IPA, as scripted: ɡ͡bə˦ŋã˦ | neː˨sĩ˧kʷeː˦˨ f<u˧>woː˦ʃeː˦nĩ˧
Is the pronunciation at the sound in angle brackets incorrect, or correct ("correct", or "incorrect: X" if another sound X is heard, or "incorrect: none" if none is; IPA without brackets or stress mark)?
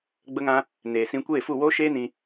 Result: incorrect: u˦˨